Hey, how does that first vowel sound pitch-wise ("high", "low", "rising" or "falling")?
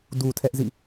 low